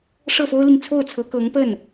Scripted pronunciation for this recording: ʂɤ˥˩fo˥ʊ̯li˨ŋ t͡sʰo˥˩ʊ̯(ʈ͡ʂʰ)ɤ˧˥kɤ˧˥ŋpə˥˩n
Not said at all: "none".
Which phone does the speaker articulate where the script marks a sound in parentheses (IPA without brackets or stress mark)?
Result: t͡sʰ